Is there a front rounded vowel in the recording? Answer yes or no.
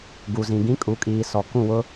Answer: no